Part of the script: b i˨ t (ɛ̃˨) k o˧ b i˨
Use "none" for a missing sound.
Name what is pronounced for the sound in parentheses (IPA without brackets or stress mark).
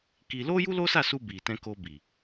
ɛ̃˧